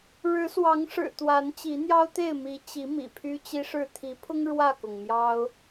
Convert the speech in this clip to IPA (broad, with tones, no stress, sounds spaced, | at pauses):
ɻ ɻ̩˨˦ s w ɑ˨˦ ŋ ʂ ɻ̩˨˩ t̪ w a˨˦ n t͡ɕ i˨˦ n̪ j ɑ˦ ʊ̯ t̪ e˥˨ ɪ̯ m i˨˦ t͡ɕ i˨˦ m ḭ˨˩ pʰ y˦ t͡ɕ i˦ ʂ ɻ̩˥˨ t̪ʰ i˨˦ pʰ ʊ˦ ŋ ɻ w ä˥˨ k ʊ˩ ŋ m j ɑ˦ ʊ̯